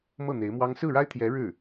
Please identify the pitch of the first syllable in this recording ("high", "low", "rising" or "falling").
falling